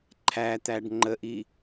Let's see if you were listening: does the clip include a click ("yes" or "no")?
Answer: yes